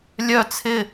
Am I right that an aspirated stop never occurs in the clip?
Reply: no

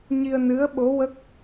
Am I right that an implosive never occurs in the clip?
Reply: no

